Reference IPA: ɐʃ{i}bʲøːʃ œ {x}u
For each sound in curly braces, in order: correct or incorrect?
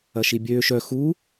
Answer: correct, correct

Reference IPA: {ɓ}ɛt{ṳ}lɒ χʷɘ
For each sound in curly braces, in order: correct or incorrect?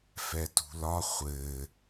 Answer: incorrect: f, correct

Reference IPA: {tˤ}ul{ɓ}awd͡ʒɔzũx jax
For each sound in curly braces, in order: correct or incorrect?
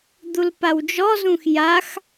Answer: incorrect: d̪, incorrect: p

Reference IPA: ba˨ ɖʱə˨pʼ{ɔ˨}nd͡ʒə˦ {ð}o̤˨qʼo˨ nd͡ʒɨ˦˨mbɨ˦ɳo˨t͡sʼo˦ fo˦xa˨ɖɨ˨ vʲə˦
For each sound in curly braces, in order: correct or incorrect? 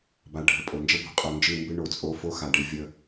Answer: incorrect: o˨, incorrect: b

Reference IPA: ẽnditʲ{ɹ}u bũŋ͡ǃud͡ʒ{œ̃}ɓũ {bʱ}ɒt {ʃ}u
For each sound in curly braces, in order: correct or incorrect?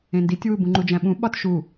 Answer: incorrect: w, incorrect: æ̃, incorrect: ɓ, correct

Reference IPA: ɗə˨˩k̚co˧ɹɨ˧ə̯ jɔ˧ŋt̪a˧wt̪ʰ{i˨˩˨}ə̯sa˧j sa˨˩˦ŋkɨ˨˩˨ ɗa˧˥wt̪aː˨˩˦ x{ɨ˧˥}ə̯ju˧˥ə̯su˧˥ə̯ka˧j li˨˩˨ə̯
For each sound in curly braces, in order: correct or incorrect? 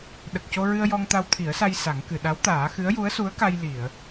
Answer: incorrect: i˨˩˦, correct

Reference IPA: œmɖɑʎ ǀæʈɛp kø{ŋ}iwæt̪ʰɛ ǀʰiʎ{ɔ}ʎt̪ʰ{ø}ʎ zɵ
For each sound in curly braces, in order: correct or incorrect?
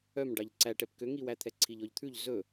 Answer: correct, correct, incorrect: ʉ

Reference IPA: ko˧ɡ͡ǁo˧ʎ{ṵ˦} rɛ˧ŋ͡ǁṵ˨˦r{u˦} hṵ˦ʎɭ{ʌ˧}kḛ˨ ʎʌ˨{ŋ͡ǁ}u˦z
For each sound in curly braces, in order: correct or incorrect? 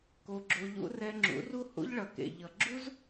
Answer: correct, correct, incorrect: ʌ˨, incorrect: ɡ͡ǁ

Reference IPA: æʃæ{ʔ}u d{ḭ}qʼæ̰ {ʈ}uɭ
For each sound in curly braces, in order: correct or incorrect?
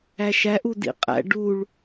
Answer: correct, correct, incorrect: ɖ

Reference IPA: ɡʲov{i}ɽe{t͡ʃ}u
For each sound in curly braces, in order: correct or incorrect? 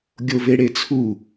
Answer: incorrect: e, incorrect: t͡sʰ

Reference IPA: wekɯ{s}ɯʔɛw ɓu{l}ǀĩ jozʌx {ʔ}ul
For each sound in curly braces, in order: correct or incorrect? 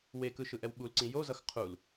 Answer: incorrect: ʃ, correct, incorrect: qʰ

